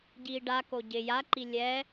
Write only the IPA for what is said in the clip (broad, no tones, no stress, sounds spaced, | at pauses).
ɟ iː ɖ a k o ɟ ɪ j a ǃ i lʲ ɛ